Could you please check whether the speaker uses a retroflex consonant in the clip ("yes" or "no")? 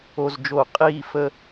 no